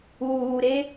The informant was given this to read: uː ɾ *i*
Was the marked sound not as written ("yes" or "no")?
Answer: yes